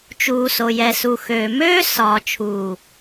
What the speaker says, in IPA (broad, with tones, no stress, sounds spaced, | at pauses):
t͡ʃ uː˨ s o˨ j ɛ˨ s u˨ x øː˨ m øː˦ s ɒː˨ t͡ʃʰ uː˨